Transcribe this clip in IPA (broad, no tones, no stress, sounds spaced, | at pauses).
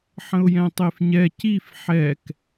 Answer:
ħ ə̃ ʊ̯ j ɛ̃ tˤ e f ɲ ɛ c i f ħ ɛ k